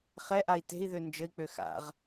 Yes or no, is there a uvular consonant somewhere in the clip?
yes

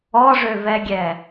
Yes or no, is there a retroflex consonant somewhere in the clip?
yes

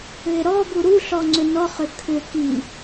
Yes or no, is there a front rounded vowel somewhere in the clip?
yes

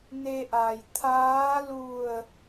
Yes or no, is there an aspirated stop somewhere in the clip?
yes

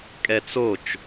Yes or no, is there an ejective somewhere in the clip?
yes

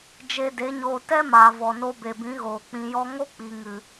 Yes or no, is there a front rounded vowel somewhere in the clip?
no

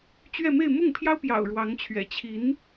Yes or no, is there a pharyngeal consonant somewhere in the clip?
no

